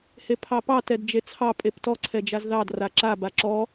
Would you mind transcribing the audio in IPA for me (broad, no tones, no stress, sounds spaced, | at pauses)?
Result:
h e pʰ ɑ p ɑ t ɛ d d͡ʒ e t͡sʰ ɑ pʼ e p t ɔ ǀʰ ɛ d͡ʒ a z ð ɑ d r a ǁ a b a ǁ ɔ